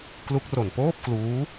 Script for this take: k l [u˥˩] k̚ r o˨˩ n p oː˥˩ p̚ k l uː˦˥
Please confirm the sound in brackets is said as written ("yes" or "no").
no